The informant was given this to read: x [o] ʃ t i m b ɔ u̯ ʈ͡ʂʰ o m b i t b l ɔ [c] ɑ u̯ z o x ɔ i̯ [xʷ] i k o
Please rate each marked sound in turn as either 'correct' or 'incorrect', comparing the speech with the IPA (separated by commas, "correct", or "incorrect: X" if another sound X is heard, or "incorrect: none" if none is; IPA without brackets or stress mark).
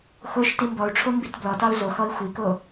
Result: correct, incorrect: t, correct